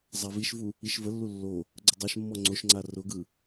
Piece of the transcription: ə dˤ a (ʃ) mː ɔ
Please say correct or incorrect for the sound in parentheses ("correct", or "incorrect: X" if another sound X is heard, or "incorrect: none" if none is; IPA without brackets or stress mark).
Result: correct